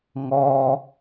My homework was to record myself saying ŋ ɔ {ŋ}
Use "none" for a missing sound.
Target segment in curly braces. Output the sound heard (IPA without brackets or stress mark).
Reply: none